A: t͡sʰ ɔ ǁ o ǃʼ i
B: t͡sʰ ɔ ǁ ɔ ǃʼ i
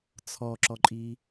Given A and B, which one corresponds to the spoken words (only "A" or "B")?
B